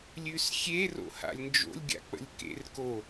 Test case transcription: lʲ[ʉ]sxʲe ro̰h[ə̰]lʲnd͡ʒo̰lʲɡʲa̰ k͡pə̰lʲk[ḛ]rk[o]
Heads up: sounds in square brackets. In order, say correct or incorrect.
correct, incorrect, correct, correct

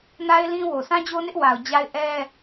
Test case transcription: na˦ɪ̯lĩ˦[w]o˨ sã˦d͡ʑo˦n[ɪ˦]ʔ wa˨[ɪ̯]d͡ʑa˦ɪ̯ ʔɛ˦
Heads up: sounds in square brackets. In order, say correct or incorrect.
correct, correct, incorrect

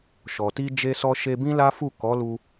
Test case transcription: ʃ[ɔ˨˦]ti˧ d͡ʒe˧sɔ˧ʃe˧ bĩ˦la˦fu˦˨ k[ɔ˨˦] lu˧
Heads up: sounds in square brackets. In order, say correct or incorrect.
incorrect, correct

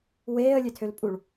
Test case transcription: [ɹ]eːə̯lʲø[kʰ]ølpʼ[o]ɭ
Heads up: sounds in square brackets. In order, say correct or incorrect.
incorrect, incorrect, incorrect

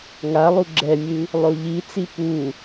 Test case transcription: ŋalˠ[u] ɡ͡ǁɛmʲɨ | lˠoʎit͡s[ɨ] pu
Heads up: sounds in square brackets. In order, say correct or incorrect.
correct, incorrect

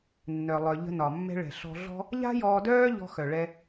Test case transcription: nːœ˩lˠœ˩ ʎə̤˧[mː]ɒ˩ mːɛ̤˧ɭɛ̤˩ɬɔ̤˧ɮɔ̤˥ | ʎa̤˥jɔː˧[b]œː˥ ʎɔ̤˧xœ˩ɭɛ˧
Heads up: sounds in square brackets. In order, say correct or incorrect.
incorrect, incorrect

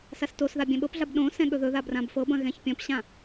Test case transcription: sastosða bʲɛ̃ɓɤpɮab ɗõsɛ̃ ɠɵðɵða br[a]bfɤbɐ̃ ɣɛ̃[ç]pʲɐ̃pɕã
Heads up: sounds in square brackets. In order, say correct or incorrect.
incorrect, correct

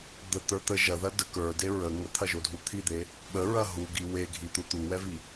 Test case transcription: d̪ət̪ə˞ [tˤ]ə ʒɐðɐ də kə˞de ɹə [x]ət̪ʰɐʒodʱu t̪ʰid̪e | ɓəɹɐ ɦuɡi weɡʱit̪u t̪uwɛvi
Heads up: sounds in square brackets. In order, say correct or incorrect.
incorrect, incorrect

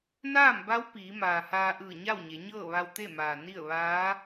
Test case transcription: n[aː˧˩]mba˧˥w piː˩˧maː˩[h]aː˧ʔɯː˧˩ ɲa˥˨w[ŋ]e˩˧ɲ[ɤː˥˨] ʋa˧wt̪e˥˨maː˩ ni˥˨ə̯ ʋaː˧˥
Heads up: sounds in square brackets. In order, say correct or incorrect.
incorrect, correct, incorrect, correct

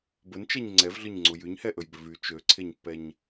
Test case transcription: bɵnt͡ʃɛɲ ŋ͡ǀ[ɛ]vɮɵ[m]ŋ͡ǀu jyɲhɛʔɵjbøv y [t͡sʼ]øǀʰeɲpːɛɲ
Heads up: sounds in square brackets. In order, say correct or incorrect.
correct, incorrect, incorrect

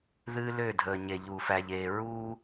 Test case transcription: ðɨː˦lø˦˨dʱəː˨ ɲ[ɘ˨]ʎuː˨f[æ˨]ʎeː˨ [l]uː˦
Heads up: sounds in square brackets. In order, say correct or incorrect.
incorrect, correct, incorrect

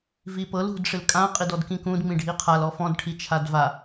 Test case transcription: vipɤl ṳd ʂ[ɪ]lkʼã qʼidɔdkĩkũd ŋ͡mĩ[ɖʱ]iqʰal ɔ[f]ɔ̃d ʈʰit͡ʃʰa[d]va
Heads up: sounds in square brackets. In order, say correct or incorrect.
correct, correct, correct, correct

